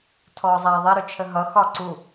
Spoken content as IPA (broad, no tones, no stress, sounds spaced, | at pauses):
tʰ ɔː zˤ æː ðˤ ɛ ɾ ʊ t͡ʃʰ ə ɦ ʌ x ɒ ǀ u